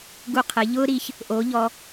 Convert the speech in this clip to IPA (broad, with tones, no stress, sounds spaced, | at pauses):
ɡ u˧ qʰ ɘ˩˧ ʎ ʊː˥ ɾ i˧ ç | ʔ oː˧˥ ʎ ɔ˧